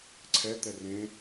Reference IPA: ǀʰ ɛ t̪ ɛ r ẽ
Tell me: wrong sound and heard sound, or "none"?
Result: none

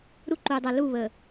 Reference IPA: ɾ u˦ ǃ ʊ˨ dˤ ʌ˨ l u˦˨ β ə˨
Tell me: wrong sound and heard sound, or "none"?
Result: ʊ˨ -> u˨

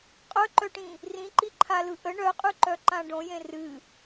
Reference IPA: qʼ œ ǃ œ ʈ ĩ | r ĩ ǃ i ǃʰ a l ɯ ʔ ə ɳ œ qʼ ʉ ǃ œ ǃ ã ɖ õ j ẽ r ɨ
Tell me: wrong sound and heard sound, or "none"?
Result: none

